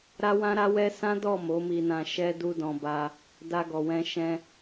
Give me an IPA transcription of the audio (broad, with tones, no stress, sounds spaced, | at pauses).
ɾ a˦ w ã˦ ɾ a˦ w ɛ˦ s ã˦ d ɔ˦˨ m o˨˦ m i˧ n ã˧ ʃ ɛ˦ d u˦ d ɔ̃˧ b a˧ | d a˦ ɡ ɔ˧ w ɛ̃˦ ʃ ɛ̃˧